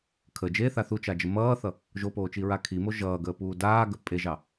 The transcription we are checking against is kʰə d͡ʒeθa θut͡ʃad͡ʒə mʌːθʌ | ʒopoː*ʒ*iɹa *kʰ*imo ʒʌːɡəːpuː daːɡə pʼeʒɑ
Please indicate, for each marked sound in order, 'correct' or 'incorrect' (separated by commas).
incorrect, correct